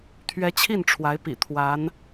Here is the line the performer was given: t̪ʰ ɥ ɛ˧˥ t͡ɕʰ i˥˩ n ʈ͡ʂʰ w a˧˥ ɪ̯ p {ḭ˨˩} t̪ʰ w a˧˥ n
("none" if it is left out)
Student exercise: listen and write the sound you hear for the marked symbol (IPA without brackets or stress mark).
ḭ˨˩